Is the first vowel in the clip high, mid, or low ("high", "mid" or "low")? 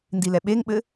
high